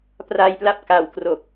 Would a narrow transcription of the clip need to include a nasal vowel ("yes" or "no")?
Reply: no